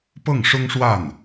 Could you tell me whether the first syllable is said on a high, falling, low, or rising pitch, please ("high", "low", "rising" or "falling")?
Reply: falling